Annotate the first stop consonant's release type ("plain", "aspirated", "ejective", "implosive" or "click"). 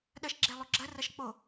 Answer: implosive